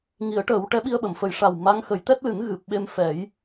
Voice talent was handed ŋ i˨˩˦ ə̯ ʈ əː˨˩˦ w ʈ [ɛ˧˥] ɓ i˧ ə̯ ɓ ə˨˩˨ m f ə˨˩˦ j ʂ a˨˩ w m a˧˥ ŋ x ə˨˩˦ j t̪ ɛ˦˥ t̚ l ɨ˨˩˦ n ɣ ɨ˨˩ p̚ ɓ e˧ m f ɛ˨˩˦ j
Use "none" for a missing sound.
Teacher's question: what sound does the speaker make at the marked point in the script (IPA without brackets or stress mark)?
ɛ˧˥